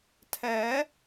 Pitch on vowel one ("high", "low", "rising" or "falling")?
rising